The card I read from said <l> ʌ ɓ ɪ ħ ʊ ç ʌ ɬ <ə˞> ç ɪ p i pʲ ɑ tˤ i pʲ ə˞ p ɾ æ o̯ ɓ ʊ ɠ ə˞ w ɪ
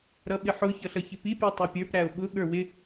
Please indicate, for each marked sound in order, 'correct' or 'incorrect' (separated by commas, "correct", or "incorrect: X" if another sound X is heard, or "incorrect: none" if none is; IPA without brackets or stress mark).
incorrect: ɾ, incorrect: ʌ